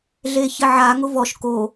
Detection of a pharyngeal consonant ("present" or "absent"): present